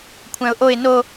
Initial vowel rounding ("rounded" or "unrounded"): unrounded